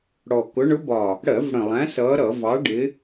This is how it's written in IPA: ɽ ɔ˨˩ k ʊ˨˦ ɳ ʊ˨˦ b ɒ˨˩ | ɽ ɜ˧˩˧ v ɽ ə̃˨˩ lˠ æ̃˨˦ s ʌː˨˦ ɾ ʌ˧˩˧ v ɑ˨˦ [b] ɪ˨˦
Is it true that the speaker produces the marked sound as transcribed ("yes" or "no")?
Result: no